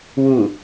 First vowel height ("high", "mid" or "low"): high